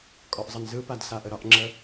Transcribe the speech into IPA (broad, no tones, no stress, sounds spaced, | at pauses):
kʼ ɔ ʔ zˤ ə n z ɯ p a d s a ʔ ə ɾ ɒ ʔ ŋ͡ǁ ə